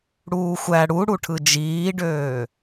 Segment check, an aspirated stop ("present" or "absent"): present